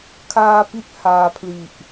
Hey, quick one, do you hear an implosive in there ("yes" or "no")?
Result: no